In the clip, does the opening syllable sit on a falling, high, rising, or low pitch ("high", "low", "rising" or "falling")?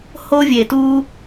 high